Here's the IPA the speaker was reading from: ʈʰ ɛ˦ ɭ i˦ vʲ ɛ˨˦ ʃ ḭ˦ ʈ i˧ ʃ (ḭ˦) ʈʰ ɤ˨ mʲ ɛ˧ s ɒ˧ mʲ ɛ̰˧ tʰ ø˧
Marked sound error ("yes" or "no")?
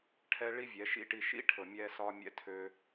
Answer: no